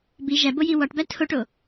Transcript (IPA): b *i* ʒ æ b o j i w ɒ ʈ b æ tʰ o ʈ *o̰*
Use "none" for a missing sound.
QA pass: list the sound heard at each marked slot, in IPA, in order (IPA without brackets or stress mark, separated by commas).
i, o